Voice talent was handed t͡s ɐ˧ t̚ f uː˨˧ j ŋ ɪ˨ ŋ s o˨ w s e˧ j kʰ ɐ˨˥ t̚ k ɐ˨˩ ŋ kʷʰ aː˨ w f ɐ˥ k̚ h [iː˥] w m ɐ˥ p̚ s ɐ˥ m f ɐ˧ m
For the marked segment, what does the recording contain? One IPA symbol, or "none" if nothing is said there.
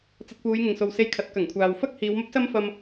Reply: iː˨˧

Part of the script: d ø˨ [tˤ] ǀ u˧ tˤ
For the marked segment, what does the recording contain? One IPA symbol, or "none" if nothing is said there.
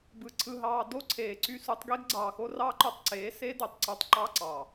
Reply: tˤ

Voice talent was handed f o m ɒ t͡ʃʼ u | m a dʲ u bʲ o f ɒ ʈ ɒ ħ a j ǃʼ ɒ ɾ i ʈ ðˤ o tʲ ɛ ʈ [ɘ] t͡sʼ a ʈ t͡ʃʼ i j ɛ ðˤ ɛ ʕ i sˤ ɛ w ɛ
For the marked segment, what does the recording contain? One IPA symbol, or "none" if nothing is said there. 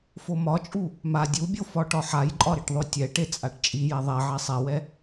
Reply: e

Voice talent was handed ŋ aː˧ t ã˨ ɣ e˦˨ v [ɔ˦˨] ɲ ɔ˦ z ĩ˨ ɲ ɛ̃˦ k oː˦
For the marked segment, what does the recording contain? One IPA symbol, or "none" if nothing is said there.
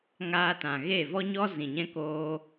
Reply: ɔ˦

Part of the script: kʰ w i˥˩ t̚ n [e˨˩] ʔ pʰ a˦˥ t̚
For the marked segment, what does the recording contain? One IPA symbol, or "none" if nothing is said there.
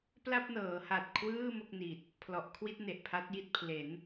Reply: e˨˩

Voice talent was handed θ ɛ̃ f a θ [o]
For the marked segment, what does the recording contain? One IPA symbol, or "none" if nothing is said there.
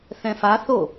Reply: o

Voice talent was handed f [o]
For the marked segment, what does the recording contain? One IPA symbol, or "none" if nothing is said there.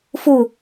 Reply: u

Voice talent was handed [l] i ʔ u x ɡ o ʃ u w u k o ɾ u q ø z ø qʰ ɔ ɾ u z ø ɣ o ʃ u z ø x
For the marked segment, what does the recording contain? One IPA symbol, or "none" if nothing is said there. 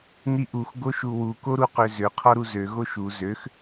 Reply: n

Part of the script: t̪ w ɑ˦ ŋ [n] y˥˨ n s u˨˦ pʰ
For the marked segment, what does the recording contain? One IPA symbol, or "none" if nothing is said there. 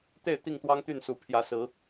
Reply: t̪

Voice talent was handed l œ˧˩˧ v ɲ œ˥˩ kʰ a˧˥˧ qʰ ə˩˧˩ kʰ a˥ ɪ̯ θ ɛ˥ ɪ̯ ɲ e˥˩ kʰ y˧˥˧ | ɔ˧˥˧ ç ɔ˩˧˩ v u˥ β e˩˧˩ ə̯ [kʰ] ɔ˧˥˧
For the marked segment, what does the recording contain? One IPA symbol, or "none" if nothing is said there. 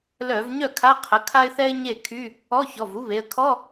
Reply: kʰ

